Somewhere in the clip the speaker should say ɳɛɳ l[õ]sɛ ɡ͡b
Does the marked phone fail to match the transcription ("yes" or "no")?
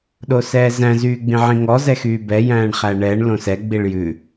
no